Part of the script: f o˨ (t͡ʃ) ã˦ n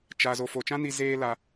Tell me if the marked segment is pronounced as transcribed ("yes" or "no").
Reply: yes